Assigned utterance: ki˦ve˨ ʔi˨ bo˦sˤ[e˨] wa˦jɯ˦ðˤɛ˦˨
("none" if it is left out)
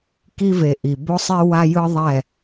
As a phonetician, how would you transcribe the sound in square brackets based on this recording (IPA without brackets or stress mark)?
e˦